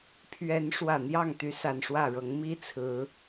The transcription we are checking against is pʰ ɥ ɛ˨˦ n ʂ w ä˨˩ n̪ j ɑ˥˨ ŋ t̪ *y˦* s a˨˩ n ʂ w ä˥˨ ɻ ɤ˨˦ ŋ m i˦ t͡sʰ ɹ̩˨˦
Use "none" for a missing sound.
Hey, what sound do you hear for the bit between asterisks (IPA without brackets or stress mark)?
y˨˦